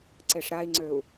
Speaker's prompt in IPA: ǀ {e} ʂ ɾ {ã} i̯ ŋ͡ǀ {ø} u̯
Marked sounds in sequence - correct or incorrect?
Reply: correct, incorrect, correct

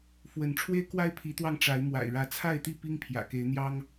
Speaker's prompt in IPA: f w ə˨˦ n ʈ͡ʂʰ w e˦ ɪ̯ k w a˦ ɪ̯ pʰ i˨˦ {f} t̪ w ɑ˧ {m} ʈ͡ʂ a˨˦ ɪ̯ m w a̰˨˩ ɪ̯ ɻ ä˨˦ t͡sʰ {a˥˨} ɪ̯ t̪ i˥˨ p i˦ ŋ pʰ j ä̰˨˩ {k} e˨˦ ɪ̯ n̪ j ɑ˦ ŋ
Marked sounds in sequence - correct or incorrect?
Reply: incorrect, incorrect, correct, correct

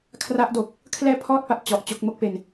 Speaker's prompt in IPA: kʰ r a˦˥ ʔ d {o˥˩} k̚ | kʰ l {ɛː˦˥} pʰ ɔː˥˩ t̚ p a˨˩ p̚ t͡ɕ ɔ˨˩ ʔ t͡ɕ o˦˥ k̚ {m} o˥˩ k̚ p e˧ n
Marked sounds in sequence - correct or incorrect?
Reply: incorrect, incorrect, correct

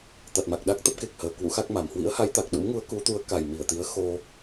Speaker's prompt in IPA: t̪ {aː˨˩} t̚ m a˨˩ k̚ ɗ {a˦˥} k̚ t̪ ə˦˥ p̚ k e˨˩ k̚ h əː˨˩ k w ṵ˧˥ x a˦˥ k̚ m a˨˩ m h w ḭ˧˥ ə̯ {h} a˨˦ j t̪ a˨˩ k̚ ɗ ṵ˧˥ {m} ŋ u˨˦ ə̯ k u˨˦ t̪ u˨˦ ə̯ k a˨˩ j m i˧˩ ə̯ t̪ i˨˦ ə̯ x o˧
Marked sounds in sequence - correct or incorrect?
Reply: incorrect, correct, correct, correct

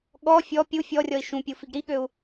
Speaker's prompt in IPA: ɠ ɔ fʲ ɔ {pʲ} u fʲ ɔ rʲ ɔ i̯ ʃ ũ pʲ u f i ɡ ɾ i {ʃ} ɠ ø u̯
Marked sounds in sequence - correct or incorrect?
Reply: correct, incorrect

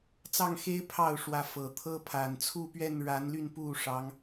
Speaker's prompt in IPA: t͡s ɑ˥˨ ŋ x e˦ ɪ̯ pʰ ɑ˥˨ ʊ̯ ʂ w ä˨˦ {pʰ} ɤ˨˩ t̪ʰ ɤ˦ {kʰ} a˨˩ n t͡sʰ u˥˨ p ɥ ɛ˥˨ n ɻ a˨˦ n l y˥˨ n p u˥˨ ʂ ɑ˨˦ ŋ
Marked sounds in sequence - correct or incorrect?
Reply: incorrect, incorrect

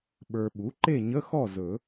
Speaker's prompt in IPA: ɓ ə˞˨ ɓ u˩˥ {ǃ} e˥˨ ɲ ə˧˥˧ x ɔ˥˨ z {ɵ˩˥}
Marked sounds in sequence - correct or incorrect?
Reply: correct, incorrect

